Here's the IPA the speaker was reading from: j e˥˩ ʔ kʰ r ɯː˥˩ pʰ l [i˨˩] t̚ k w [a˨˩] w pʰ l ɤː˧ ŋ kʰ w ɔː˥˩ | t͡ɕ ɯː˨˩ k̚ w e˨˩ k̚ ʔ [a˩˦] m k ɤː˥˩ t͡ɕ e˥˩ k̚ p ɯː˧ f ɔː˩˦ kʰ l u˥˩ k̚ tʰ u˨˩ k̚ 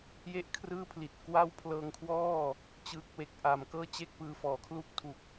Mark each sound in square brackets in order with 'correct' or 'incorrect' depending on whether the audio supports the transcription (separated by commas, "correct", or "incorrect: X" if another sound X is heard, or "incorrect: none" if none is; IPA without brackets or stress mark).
correct, incorrect: a˥˩, incorrect: a˨˩